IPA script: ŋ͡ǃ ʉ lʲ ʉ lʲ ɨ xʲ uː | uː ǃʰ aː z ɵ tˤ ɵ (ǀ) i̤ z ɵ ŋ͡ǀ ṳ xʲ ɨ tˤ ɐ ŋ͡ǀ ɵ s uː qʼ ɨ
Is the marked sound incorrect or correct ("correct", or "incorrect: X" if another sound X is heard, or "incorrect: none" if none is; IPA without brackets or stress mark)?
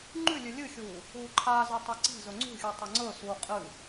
correct